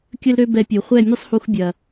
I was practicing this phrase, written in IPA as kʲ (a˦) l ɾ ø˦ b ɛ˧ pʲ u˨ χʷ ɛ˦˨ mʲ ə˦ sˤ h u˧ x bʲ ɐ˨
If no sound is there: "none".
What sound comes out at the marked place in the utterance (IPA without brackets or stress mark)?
ə˦